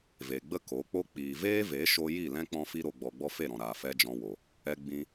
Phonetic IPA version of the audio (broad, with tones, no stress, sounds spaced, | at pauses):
v e˨ ɡ͡b ə˦ k o˨˦ k͡p o˦ k͡p iː˨ v eː˦ v e˨˦ ʃ o˧ j i˦˨ l ɛ̃˦ k͡p ɔ̃˦ f i˦ ɾ o˨ ɡ͡b ɔ˨ ɡ͡b ɔ˧ f e˦˨ ɾ ɔ̃˨ ɾ aː˨ f ɛ˦ d͡ʒ ɔ̃˧ w o˨ | ɛ˧ ɡ͡b ĩ˧